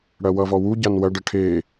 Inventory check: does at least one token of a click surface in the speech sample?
no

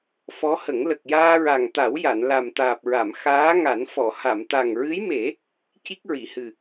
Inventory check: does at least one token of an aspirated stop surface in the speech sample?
no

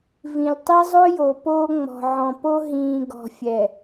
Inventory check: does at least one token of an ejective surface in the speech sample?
no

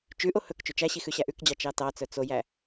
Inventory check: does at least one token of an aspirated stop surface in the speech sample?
no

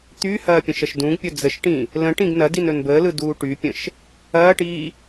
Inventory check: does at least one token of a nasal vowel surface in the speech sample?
yes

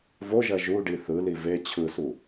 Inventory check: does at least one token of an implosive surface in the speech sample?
no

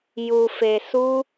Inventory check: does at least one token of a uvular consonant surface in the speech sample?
no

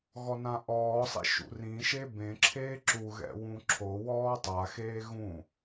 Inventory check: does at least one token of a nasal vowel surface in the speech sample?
yes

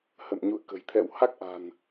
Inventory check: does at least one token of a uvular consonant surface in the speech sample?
no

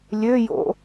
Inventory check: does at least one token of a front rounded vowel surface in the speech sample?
yes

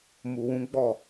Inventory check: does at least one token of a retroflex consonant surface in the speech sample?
no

